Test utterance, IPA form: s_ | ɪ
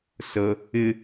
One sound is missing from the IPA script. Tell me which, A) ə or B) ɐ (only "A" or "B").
A